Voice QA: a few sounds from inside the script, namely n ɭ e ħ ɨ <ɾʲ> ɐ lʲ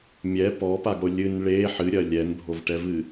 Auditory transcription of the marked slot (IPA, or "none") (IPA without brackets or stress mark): ɾʲ